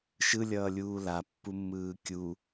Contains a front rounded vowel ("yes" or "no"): no